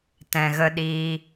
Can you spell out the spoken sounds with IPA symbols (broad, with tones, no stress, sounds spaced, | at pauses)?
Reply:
t ɛ̃˨ ɣ ə˧ ɗ iː˧